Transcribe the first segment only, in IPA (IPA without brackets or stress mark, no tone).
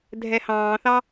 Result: dʱ